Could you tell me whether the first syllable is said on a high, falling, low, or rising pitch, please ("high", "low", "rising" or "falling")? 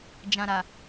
low